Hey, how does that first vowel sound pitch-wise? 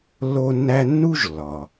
high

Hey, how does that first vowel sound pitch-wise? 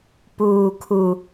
low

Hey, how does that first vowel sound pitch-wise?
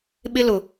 high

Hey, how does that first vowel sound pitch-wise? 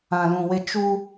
low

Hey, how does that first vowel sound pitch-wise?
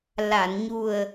low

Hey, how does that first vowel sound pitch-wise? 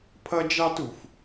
high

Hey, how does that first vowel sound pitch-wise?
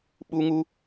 high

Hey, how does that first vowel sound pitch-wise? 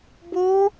high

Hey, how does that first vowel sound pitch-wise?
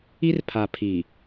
high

